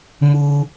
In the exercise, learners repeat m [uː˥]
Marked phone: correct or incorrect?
correct